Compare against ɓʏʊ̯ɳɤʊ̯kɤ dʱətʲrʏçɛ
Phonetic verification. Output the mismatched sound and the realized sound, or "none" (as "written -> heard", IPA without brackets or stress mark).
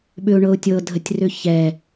k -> tʲ